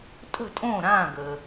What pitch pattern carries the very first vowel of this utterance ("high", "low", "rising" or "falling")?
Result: falling